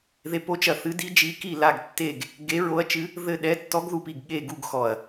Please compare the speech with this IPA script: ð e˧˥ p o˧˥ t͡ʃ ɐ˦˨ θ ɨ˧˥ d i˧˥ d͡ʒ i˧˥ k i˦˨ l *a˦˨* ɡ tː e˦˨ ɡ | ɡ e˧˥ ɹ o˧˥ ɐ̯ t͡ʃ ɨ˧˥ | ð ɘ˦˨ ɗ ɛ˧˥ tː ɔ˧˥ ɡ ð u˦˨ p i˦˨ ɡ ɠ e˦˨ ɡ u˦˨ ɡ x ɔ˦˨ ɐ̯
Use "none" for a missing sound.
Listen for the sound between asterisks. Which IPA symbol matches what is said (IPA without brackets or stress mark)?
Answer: a˦˨